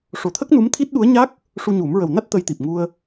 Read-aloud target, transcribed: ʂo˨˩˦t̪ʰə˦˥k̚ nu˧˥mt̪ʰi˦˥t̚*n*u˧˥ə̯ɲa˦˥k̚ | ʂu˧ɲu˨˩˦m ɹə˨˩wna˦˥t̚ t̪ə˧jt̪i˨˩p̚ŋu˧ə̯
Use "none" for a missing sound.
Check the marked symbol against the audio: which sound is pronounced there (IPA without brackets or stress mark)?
ɗ